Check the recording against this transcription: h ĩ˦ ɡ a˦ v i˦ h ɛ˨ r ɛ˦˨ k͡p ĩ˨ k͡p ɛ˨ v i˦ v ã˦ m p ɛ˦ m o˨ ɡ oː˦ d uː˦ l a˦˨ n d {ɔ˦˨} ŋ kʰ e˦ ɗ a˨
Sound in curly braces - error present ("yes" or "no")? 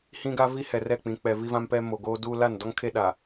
yes